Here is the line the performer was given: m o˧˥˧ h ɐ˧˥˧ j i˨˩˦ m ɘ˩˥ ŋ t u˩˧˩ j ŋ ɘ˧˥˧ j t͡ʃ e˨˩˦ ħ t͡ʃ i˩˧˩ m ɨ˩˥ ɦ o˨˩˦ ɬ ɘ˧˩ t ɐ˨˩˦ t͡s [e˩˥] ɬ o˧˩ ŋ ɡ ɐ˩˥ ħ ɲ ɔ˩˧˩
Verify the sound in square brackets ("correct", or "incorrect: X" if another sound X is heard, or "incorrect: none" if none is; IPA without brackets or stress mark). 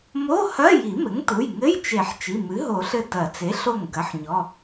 correct